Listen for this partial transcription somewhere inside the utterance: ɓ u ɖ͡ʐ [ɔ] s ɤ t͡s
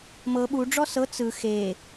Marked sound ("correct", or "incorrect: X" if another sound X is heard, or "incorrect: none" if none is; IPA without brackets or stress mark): correct